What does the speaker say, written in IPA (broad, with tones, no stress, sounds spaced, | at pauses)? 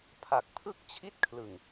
pʰ a˨˩ k̚ pʰ ɯ˥˩ k̚ t͡ɕʰ i˦˥ t̚ kʰ l ɯ˨˩ ŋ